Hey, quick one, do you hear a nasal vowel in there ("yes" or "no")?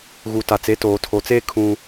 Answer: yes